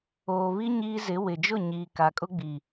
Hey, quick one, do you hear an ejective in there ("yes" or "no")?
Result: yes